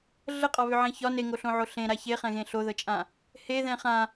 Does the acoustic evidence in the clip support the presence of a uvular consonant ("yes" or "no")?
yes